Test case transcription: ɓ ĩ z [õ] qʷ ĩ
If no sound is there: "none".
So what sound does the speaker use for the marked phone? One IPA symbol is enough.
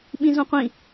ũ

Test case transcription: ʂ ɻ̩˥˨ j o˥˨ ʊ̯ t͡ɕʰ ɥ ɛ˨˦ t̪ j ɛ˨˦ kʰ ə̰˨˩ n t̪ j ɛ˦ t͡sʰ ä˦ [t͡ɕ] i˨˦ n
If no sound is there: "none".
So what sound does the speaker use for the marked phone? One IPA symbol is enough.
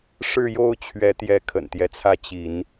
t͡ɕ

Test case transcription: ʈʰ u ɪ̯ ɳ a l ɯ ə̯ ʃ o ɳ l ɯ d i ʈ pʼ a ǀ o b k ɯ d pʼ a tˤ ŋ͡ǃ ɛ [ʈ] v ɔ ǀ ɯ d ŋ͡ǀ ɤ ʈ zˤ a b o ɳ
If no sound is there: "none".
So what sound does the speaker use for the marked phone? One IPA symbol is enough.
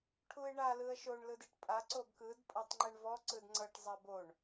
ɳ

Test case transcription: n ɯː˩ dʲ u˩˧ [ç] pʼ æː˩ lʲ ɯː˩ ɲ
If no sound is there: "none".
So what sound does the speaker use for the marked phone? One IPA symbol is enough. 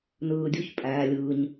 ç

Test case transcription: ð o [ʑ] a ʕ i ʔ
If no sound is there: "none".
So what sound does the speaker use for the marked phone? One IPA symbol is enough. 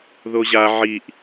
ʑ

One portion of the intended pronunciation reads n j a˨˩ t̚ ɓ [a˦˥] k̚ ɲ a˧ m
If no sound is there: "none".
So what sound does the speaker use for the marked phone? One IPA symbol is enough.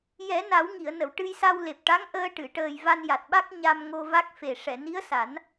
a˦˥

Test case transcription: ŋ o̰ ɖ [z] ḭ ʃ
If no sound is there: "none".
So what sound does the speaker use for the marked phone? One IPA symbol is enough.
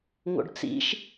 t͡s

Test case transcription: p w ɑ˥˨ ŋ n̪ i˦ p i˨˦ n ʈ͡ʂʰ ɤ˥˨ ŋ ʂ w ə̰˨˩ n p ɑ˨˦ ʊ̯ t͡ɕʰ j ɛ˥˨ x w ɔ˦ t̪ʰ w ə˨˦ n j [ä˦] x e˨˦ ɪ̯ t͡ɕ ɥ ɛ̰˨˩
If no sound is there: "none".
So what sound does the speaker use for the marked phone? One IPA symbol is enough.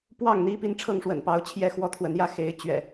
ä˦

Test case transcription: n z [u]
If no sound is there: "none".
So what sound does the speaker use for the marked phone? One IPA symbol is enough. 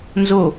o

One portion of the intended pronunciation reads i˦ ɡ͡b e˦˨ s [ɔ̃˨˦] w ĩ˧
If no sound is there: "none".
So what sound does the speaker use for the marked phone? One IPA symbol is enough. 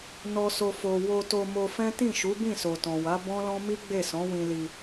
ɔ̃˨˦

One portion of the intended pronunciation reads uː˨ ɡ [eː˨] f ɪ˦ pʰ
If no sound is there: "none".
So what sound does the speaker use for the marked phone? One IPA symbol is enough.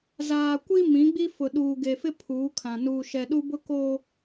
e˨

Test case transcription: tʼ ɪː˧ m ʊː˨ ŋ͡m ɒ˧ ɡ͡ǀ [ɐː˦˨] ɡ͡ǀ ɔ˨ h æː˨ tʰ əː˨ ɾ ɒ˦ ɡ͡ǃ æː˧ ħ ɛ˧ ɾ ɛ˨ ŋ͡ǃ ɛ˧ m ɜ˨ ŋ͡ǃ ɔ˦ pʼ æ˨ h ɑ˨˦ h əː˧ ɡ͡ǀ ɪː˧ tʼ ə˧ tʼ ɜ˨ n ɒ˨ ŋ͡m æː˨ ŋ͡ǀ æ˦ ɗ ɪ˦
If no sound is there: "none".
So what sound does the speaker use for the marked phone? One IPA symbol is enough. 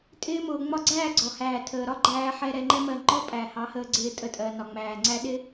æː˦˨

